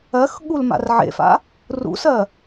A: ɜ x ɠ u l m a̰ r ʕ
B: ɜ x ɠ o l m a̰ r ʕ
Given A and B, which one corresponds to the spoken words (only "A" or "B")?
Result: A